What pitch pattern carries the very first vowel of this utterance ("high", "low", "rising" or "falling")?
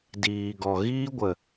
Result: low